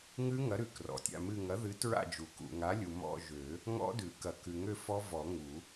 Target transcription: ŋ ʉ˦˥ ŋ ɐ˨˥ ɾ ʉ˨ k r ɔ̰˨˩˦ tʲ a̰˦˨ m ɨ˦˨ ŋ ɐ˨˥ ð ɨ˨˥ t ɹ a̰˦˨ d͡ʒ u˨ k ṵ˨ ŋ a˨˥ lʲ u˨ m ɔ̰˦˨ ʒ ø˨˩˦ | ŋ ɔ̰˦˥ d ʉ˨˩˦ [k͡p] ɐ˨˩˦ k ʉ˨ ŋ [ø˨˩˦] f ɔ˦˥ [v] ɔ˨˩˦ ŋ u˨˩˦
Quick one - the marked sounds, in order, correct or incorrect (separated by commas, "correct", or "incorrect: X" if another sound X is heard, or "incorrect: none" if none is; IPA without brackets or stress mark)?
incorrect: k, incorrect: ø˦˨, correct